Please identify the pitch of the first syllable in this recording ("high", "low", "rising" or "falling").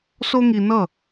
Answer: high